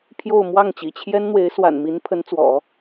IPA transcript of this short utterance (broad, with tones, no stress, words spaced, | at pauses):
pʰjo˥˧ʊ̯ mwɑ˥˩ŋt͡ɕḭ˨˩ t͡ɕʰjɛ˥nn̪we˧˥ɪ̯ swa̰˨˩nmi˧˥n pʰə˧˥nt͡swɔ̰˨˩˦